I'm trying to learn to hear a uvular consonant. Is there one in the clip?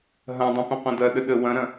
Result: yes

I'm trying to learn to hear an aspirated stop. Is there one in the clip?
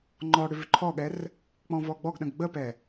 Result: yes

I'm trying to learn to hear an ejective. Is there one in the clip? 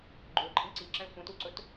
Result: yes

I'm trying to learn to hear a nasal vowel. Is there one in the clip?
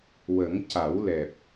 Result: no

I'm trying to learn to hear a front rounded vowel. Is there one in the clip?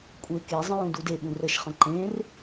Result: no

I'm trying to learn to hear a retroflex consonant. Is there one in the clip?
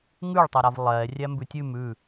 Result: yes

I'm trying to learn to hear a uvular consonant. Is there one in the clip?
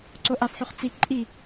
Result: yes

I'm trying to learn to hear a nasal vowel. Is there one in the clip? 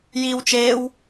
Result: no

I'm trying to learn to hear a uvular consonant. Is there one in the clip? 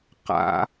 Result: yes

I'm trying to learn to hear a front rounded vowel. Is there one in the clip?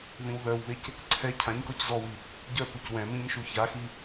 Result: yes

